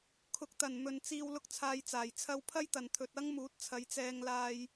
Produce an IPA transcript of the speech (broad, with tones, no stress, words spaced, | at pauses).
kʰʊ˨˥k̚t̪ɐ˨˩n mɵ˨nt͡siː˧w lʊ˥k̚t͡sʰaː˧jt͡saː˨˩j t͡sʰɐ˧wpʰɐ˥jt̪ɐ˨˩nt̪ʰɵ˨t̚ ɐ˥ŋ muː˨˥t̚t͡sʰɐ˨˧jt͡sɛː˧ŋlaː˧j